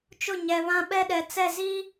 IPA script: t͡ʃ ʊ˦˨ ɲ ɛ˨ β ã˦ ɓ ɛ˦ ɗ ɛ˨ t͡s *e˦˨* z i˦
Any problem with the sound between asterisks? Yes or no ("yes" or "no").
yes